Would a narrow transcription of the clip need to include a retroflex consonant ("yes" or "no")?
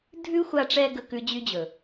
yes